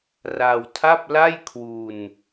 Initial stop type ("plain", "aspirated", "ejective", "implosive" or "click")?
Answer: aspirated